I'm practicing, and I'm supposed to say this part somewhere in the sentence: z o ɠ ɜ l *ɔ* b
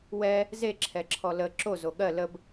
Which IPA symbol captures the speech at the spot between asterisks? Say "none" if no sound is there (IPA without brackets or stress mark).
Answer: ə